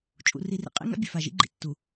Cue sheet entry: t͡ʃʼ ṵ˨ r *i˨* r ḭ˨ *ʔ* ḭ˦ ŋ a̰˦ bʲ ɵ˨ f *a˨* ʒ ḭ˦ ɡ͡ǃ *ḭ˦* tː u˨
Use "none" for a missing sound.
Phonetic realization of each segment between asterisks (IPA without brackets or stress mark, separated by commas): i˨, qʼ, a˨, ḭ˨